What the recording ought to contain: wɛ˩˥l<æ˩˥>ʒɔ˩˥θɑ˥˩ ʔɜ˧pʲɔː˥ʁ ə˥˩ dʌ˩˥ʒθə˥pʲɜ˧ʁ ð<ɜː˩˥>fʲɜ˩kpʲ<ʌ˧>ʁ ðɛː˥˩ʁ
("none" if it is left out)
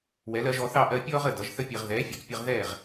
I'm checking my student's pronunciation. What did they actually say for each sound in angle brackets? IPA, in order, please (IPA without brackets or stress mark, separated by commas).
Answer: ɜ˩˥, ɛː˩˥, ʌ˧